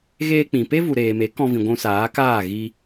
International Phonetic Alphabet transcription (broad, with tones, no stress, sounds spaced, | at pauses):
ɣ eː˧ k͡p ĩ˨ p e˦ v u˨ ɾ eː˨ m e˨˦ k ɔ̃˧ v ĩ˨ ɡʷ ũ˧ s aː˨˦ k aː˦˨ ɣ i˧